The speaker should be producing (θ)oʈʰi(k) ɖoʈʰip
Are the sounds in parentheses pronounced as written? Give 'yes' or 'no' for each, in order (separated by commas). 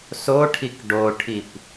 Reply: no, yes